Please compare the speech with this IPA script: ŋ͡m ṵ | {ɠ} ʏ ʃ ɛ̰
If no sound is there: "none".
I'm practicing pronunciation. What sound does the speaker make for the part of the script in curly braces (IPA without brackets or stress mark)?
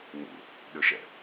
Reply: ɗ